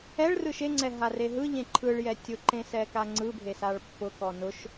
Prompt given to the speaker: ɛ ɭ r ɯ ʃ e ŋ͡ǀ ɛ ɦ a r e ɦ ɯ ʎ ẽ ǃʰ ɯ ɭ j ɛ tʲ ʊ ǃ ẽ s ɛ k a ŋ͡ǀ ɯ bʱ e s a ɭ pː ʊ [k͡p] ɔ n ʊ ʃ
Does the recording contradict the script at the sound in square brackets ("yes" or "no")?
yes